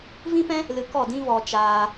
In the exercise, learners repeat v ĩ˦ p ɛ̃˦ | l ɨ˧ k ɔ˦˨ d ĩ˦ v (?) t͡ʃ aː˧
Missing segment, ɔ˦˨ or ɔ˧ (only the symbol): ɔ˧